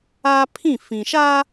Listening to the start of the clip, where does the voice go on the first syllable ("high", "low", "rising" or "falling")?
high